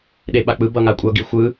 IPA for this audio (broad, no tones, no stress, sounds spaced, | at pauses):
ɗ e ɓ a k͡p ɯ b ʌ ŋ a kʷʼ ʌ ɡ i xʷ ɯ